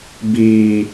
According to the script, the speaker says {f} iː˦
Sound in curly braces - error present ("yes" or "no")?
yes